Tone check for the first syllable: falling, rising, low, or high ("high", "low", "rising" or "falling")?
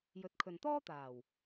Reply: rising